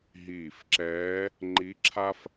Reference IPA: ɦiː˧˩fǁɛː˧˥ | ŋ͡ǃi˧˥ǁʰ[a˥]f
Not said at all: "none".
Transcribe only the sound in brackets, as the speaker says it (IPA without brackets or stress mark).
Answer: a˥